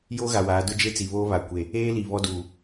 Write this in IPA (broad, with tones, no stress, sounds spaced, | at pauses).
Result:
j oː˦ ɣ a˨ w aː˨˦ d ʊ˦ d͡ʒ e˦ t͡s i˨ β oː˦ β a˨ kʷ e˨ | eː˦ l i˨ β ɔ˦ d uː˨